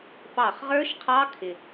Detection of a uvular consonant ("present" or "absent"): present